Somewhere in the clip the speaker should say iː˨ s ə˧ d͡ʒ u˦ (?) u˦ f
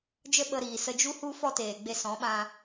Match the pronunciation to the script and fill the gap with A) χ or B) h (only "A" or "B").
B